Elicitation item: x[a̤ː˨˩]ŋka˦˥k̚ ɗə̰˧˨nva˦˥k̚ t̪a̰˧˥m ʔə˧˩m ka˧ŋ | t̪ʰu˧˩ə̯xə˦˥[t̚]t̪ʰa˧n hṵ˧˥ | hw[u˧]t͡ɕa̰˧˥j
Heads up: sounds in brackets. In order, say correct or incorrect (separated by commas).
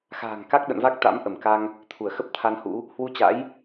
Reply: correct, incorrect, correct